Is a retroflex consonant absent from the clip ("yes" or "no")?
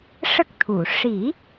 no